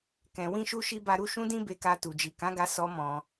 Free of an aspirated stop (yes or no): yes